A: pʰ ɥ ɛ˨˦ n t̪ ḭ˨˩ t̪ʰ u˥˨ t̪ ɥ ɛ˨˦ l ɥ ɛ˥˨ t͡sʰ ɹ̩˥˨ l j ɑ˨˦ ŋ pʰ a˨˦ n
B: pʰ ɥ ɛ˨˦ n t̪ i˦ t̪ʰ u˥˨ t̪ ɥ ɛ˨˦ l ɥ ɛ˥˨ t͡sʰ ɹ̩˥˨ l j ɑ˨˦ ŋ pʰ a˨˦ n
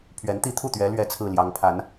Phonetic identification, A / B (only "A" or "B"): B